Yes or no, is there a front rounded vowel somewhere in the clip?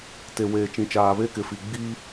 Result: no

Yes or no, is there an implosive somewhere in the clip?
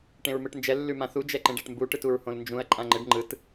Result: no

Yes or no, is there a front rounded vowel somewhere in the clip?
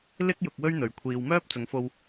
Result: yes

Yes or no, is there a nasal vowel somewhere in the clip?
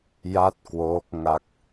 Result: no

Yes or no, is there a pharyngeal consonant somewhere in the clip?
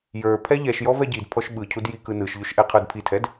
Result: no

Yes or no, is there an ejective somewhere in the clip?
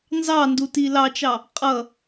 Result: yes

